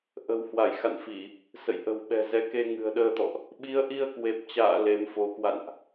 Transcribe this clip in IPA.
ʔ ə̤˨˩ w h w a˧˩ j x a̰˧˨ n f i˧˩˨ | s ə̰˧˨ j ʔ ə̤˨˩ w ɓ ɛ̤˨˩ z ɛ˨˦ k e˧ ŋ ɨ̤˨˩ ə̯ ɗ əː˧ t̪ ɔ̰˧˨ ʔ | ɓ i˨˦ ə̯ ʔ i˧ ə̯ k w e˨˩ p̚ t͡ɕ a̰ː˧˨ l e˨˦ m f o˨˦ k w a̰˧˨ n ʔ

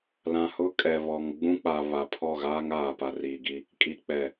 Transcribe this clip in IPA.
l ã˨ h ʊ˦ kʼ ɛ˨ β ɔ˨ ŋ ɡ͡b ũ˦ k͡p a˨ β a˨ pʰ ɔ˦˨ ɣ aː˦ ŋ aː˨ p a˨ r iː˨ ɡ i˦ | kʼ i˨ k͡p ɛ˨

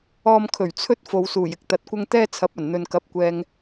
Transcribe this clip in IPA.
ɔː˧ m kʰ ɵ˨˩ ɥ t͡sʰ ɵ˥ t̚ f o˨ w s uː˨˩ j ɪ˥ k̚ t̪ ɐ˨ t̚ kʷ ɐ˥ ŋ t̪ ɛː˥ t͡sʰ ɐ˨˥ p̚ ɐ˨˩ n n̪ ɵ˨ n k ɐ˨˥ p̚ kʷ ɛː˨ ŋ

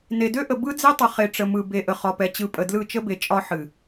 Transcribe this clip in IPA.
n e˨ d ø˦ ʔ ə˨ b ɯ˦ d͡z e˦ tˤ ə˨ χ e˨ ʈ͡ʂ ə˨ m ɯ˨ b e˨ ʔ ə˨ χ ɒ˨ p ɛ˨ t͡ɕ ɯ˨ pʼ ə˨ d l ɯ˦˨ t͡ʃ ə˦ b e˨ t͡ʃʼ ɒ˦ ħ ɨ˨

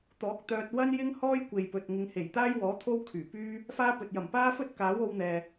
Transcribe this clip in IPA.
t̪ ɔː˨˥ k̚ t̪ œː˧ t̚ w ɐ˥ n j ɪ˥ ŋ h ɔː˥ j kʷ e˨ j p ɵ˨ t̚ ŋ ɪ˨˧ ŋ h e˨˩ j t̪ aː˥ j w ɔː˨˥ t̪ʰ o˥ w kʰ yː˨˩ p yː˥ | f aː˥ p ɵ˨ t̚ j ɐ˨˩ m p aː˥ f ɵ˥ t̚ k aː˨˥ w o˨˧ w n̪ ɛː˨

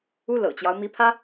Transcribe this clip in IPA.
u˥ l ɤ̰˨˩ t͡ɕ j ɑ˦ ʊ̯ m i˧˥ pʰ ä˥

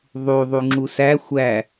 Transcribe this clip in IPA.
ðˤ u ðˤ u ŋ͡ǁ u s æ xʷ æ

